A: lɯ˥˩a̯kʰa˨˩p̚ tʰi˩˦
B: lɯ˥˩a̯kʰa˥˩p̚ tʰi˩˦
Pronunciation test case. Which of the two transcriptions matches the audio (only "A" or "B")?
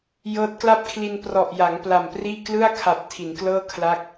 A